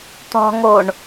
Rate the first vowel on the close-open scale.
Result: mid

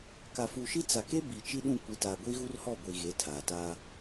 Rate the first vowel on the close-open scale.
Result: open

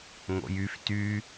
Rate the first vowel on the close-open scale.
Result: mid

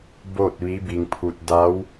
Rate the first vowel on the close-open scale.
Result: mid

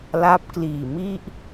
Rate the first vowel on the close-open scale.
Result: open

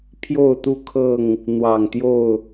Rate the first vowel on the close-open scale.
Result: mid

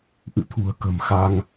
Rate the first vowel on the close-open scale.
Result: close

